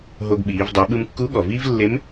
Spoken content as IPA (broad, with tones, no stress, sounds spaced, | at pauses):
ɦ o˧ ɡ ɓ iː˩˧ v dˤ o˩˧ ɓ ɯ˧ m kː u˧˥ ɠ ɔ˩ v iː˥ v lː e˧˥ m